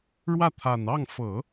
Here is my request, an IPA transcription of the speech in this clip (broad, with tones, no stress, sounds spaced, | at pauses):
ɻ w ä˥˩ t̪ʰ a˨˩ n ɑ˥˩ ŋ f ɤ˨˩˦